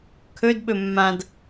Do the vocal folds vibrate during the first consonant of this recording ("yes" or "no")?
no